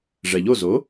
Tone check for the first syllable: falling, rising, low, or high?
low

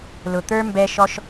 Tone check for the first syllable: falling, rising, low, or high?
low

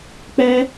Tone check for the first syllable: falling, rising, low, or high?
high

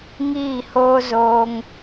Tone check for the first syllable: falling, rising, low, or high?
falling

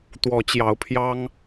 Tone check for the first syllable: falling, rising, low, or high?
rising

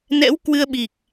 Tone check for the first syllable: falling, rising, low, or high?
rising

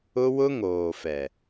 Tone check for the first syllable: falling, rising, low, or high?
high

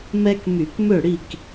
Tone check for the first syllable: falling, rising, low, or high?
high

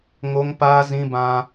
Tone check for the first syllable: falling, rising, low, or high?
high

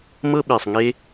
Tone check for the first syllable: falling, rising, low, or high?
high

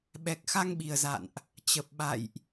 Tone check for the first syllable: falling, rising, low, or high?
low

